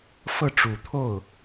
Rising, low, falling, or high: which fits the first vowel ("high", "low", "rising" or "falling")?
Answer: falling